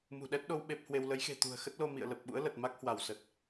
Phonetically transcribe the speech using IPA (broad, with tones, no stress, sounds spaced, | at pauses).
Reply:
m ṳ˨˩ ɗ ɛ˦˥ t̚ ɗ o˧ w ɓ e˦˥ p̚ h w e˧ w l ə˨˦ j x e̤˨˩ t̪ ṳ˨˩ ə̯ x ə˦˥ t̚ l o˧ m ḭ˧˨ ə̯ l ə˨˩ p̚ ɓ ṵ˧˥ ə̯ l ə˨˩ t̚ m a˦˥ k̚ h w a˧˩ w s ə˨˩ t̚